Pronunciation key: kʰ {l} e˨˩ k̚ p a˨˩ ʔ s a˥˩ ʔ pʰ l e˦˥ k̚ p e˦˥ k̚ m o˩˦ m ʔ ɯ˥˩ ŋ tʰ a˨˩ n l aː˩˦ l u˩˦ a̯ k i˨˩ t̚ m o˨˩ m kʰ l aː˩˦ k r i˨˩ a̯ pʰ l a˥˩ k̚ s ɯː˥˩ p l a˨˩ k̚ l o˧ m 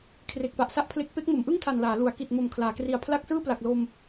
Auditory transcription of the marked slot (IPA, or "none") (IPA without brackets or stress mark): r